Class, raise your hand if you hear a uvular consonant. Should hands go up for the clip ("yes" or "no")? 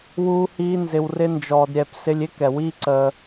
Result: no